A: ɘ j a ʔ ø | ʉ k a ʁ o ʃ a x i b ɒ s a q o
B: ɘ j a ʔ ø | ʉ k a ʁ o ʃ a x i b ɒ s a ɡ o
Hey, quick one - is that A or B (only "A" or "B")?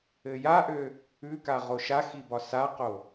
A